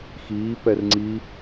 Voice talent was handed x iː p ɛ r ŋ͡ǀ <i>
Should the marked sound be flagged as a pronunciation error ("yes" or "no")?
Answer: no